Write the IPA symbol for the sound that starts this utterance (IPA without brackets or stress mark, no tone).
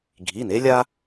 ɡʱ